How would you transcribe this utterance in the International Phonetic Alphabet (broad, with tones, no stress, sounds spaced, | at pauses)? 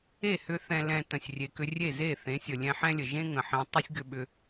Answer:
e˦˨ h ʏ˧ θ ɛ̃˨ l ɛ̃˨ t ə̃˨ sʲ rʲ e˨ k ʏ˧ rʲ e˦˨ z e˦˨ θ ẽ˨˦ sʲ ə˨ lʲ ɛ̃˧ ħ ɛ̃˦ lʲ ə˨ ʒ ẽ˦ ŋ ə̃˨ ħ ẽ˧ tˤ ə˦ sʲ ɡ ʏ˧ ɓ ʏ˧